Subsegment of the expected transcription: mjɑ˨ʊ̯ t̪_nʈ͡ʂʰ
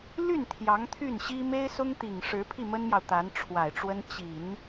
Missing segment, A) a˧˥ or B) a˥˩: A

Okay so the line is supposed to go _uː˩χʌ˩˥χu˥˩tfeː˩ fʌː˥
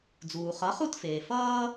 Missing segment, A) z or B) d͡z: B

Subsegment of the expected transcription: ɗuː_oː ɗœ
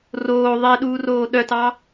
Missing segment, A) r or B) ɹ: A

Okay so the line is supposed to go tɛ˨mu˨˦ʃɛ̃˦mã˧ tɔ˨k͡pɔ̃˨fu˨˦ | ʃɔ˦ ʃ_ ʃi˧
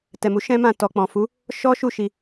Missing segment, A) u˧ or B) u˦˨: B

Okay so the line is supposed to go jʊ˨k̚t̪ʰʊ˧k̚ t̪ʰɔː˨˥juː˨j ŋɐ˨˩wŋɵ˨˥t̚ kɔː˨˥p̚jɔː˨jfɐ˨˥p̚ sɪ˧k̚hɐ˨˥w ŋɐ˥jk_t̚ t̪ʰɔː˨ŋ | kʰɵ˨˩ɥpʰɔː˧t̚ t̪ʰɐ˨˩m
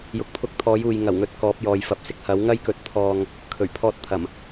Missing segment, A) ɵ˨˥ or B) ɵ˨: A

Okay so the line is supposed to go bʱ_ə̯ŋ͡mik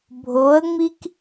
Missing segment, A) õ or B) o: B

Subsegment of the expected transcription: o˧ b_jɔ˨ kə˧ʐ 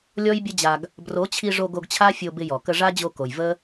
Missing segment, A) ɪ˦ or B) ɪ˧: B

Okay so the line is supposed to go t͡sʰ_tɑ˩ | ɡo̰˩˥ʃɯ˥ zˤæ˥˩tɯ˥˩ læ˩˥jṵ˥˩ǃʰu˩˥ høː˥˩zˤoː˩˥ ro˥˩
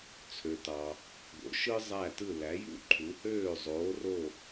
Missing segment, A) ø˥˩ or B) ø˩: B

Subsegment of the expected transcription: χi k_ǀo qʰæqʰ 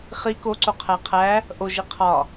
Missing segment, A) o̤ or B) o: B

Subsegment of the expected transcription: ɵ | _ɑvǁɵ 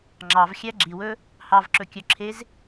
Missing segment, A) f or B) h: B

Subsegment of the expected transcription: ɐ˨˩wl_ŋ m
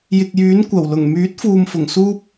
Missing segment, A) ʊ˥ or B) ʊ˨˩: B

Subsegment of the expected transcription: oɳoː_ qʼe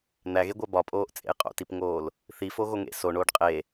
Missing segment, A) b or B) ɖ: B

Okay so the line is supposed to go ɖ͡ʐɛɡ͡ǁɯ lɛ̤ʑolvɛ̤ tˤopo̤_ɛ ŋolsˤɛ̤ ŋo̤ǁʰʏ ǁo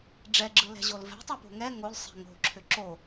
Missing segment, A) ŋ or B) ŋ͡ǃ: A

